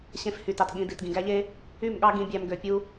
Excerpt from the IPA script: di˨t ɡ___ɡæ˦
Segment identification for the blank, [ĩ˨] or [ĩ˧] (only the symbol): ĩ˨